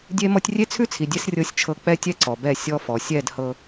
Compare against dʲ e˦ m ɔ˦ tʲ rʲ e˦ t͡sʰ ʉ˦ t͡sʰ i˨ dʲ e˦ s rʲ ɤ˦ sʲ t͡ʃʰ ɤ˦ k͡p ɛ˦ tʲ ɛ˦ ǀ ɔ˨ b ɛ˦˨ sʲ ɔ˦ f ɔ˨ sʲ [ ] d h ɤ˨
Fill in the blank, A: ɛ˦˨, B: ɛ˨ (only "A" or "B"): A